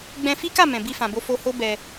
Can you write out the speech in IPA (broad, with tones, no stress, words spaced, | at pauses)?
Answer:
ɡ͡bɛ̃˧fi˦ka˦˨ mɛ̃˨bi˧fã˨bo˧ fo˧ho˦ bɛ˧